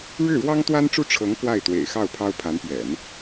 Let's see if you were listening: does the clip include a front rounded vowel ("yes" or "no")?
no